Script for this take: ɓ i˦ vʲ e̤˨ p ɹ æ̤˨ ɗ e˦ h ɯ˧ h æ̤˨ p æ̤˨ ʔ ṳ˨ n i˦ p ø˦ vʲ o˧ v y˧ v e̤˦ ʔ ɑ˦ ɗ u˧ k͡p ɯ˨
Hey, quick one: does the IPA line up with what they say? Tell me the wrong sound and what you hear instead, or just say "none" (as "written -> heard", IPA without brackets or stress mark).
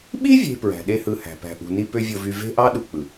none